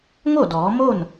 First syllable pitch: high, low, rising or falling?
falling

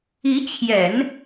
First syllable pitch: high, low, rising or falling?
rising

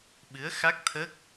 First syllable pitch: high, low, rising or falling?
rising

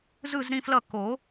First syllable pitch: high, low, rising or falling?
falling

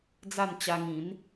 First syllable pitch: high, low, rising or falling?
falling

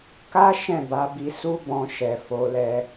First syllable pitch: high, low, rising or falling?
high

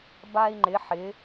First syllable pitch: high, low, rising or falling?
high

